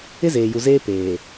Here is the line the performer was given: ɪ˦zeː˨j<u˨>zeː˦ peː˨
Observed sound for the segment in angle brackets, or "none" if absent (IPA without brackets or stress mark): u˨